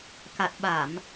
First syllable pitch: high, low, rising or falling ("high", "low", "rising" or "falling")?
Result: low